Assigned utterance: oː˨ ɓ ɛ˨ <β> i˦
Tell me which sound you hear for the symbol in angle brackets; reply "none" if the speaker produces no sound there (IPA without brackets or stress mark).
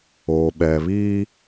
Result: β